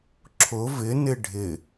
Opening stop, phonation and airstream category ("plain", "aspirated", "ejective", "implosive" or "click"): click